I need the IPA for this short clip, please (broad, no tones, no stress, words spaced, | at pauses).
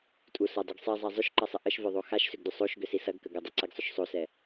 tʼu sɐdˤoɡ sˤizˤa zˤʏʃǃɐsˤə ʔəʃvœðˤo xaʃsʏɡdʏ sˤoʃɡʏsi sɐɡkə ɡədˤɐǀɛɡsˤʏʃ sˤosɛ